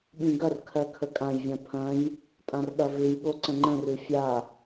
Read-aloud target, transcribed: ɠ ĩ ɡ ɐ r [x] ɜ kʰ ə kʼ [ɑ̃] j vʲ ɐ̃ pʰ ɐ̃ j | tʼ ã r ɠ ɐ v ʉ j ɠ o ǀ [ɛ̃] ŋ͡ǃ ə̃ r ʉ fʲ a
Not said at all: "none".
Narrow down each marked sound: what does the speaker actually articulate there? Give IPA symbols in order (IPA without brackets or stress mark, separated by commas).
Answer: kʰ, ã, ə̃